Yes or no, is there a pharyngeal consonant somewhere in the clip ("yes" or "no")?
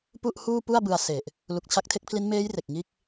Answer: no